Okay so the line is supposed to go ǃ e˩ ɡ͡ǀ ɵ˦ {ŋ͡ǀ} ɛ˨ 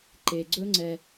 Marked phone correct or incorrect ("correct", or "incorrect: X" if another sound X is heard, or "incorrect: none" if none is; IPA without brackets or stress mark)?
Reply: correct